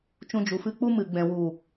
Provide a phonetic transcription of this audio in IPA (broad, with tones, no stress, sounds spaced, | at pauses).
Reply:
t͡ʃ ũ˧ d͡ʒ u˨ f ɨ˧ k͡p u˦ m ɨ˨ ɡ͡b ɛ̃˨ w u˨